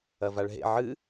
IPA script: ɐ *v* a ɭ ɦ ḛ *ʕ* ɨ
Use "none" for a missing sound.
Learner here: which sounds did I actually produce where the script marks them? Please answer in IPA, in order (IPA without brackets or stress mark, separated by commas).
v, ʕ